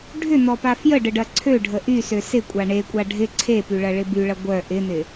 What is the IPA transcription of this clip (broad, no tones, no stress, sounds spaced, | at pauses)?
ɖʱ ʏ n̪ ɔ p a f j ə ɖ ə ɖ ɐ ǀʰ ø ɖʱ ə ʔ y s ø s ɪ kʷʼ a ɳ e kʷʼ a ɖʱ ɪ ǀʰ e p y ɭ ɐ ɭ ɪ b y ɭ ɐ ɡʷ œ ʔ ɪ n̪ ɪ